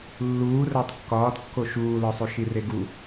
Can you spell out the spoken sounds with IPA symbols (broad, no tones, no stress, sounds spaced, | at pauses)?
lː uː r æ tˤ kː ɒː d kː o ʃ uː l ɒ sˤ u ʃ i r e ɡ u